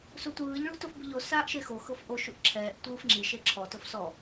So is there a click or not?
yes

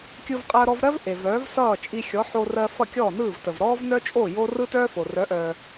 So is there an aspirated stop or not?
no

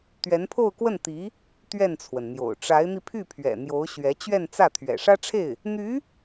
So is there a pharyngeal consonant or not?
no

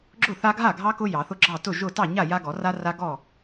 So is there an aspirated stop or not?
no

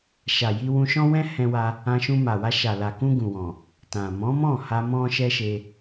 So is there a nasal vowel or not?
yes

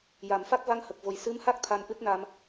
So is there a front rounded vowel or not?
no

